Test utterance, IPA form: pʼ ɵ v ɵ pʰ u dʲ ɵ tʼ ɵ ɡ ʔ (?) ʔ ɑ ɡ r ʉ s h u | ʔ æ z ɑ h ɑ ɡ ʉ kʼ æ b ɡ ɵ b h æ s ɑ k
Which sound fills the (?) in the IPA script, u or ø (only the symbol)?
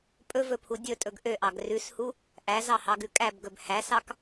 ø